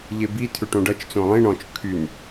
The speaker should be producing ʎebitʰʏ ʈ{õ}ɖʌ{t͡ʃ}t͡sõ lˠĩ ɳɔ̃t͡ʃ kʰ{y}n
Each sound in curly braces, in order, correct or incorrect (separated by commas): correct, correct, correct